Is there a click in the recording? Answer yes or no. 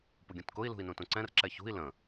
yes